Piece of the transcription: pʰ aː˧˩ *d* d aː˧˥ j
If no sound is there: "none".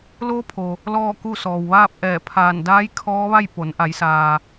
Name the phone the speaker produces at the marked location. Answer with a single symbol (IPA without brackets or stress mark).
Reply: n